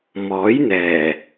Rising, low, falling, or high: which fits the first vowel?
rising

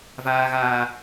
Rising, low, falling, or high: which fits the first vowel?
high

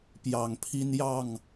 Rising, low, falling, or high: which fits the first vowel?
low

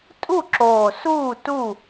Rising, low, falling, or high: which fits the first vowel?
falling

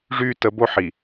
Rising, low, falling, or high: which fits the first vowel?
high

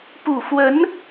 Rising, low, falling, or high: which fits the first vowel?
low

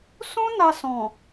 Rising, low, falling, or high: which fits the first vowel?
high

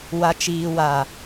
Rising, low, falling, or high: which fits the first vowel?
low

